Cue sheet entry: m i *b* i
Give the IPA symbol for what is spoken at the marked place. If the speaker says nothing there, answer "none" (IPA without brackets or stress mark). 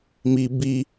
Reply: b